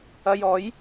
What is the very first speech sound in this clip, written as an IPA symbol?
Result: ɐ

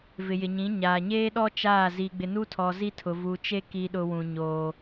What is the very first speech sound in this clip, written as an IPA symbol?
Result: v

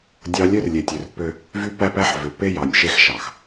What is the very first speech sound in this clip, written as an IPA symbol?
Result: dʲ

